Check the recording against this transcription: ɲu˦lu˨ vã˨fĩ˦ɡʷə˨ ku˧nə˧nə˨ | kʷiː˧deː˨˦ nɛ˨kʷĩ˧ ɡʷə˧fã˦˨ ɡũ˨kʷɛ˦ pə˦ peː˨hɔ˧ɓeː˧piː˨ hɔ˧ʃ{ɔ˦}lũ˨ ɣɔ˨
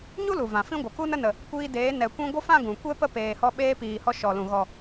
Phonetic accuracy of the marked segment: incorrect: ɔ˨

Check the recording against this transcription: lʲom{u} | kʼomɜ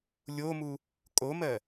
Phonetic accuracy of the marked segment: correct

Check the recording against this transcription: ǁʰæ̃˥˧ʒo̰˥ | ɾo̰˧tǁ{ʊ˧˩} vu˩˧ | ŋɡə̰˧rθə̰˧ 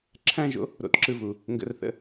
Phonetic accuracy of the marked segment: incorrect: ɯ˧˩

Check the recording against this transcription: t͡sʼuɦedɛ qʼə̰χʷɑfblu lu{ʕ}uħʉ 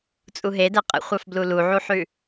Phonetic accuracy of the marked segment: correct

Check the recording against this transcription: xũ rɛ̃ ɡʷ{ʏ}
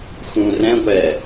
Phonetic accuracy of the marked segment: incorrect: ɛ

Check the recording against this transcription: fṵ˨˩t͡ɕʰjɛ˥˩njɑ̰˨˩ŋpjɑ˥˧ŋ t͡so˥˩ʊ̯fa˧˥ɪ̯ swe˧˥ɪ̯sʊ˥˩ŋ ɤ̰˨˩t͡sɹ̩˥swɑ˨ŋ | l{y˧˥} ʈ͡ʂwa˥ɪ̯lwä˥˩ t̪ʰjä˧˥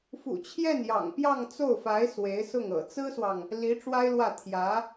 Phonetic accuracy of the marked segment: incorrect: i˧˥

